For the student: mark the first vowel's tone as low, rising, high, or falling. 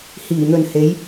low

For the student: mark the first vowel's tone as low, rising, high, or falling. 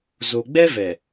low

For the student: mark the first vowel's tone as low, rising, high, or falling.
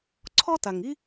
high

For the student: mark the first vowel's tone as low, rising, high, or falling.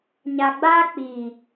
low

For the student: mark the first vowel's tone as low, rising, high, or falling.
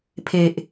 low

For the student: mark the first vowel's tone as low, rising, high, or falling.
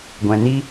low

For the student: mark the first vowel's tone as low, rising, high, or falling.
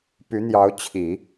rising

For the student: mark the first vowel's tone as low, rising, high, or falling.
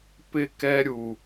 high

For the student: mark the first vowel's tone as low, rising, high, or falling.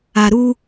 low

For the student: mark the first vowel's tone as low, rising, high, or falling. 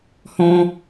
high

